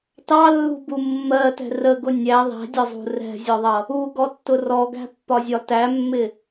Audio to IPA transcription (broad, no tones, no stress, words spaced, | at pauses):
tɑlːṳbu mːɜtɛ̤ rəɡʊ nʲæ ðˤæ̤dʲɒzˤṳ rɛ̤zʲɔðˤʌ | uɡɔtːʊ rɔɡæ̤pːɒzʲɒ tæmːɪ